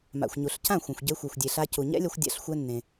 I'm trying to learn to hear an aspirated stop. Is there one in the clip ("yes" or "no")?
no